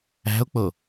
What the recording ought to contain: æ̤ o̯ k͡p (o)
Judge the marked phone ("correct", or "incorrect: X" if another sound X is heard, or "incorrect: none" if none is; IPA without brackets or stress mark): correct